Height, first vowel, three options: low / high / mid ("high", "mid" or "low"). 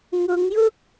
high